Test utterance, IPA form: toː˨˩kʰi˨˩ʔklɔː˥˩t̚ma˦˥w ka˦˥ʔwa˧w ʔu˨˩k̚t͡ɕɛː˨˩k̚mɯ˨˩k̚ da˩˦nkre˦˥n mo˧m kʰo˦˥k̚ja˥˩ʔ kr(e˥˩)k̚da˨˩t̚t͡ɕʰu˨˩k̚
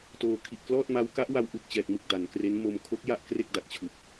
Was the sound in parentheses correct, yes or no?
yes